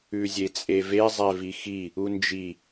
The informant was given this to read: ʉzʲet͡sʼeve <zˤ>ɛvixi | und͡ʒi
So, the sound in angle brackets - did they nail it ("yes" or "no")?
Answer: yes